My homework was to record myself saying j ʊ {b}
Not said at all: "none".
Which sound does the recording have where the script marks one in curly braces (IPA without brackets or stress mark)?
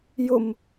m